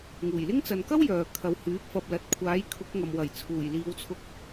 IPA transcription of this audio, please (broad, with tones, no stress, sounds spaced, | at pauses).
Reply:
ŋ uː˨˩ j l ɪ˥ ŋ t͡s ɐ˨ n k ɐ˥ w j œː˨ kʰ ɐ˨ w h yː˨˥ p̚ f ɐ˨ p̚ l ɐ˨ t̚ kʷʰ aː˨˥ j kʰ ʊ˨˥ k̚ ŋ ɐ˨ m w ɐ˨˩ j t͡sʰ uː˨˩ j l iː˨˧ w t͡sʰ ʊ˧ k̚